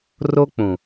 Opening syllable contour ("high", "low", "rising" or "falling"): high